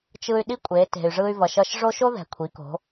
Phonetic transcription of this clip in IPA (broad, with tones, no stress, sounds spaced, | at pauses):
t͡ʃ ɯ˧ y̯ ɗ i˥ kʷʼ e˩˧ t e̤˩ y̯ ʐ ɯ˧ y̯ v ʌ˩ ʃ ʌ˧ ʃ ʐ o˥ ʃ o˥ ð ɛ̤˩ kʷʰ i˩˧ k o̤˩˧